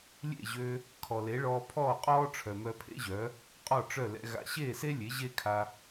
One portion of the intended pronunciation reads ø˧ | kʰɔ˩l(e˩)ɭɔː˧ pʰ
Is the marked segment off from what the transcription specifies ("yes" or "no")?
yes